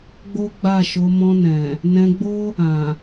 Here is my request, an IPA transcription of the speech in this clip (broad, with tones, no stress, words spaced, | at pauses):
ɡ͡bo˦ɡ͡ba˦˨ʃo˨˦ mɔ̃˧nɛ̃˨ | nɛ̃˧ɡ͡bo˦ | ã˨